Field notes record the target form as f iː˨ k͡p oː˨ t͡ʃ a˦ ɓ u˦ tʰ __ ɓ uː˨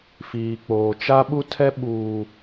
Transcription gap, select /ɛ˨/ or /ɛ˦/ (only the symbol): ɛ˦